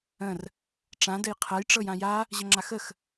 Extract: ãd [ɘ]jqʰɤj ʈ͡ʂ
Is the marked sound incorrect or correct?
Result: correct